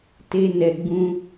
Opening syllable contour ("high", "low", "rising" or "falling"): high